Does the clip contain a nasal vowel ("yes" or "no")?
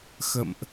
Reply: no